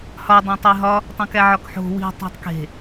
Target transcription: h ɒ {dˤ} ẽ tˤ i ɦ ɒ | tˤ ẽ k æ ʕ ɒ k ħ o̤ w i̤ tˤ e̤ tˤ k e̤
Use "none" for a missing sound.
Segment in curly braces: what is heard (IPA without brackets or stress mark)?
dˤ